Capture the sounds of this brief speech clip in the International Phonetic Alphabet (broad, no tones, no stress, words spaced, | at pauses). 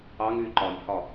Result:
ɑŋ y ǃɒnʲhɒ